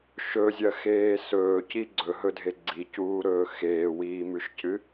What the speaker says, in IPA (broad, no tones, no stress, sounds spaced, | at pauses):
ʃ ɵ zʲ ɐ x eː s ɵː c i ɡ͡ǀ ɵ ɦ ɵ dʱ e ɡ͡ǀ i c uː ɾ ɵː x eː w iː m ʉ ʃ c ɨ